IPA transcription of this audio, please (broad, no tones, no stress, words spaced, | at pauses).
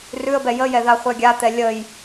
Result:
rʉə̯bɛ jəjɛ ðaχʷɛɡʲat̪ɛ lʲəj